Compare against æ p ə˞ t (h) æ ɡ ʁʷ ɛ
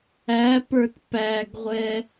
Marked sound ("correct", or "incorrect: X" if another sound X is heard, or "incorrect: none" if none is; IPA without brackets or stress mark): incorrect: p